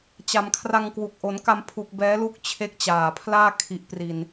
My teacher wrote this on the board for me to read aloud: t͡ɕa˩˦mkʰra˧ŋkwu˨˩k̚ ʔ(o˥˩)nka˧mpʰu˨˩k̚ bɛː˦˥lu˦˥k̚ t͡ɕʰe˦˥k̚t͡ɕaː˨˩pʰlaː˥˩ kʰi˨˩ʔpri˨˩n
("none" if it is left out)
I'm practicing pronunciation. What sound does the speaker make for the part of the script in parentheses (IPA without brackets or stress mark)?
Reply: o˩˦